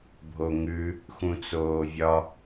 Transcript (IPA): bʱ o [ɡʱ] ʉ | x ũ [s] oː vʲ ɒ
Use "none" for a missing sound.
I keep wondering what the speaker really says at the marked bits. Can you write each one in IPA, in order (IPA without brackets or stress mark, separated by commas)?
ŋ, t͡s